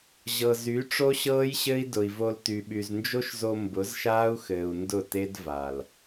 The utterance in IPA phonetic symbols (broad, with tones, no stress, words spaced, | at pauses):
ʑɤ˨ zy˨˦ʈ͡ʂo˦ɕɤː˦j ɕɘ˦i̯ dʊ˨i̯vo˧l ty˨ɓy˨znd͡ʒo˦ʃzo˧ mbʊ˨˦zʃaː˦u̯xɘː˨u̯ ndʊ˦˨te˦d va˨l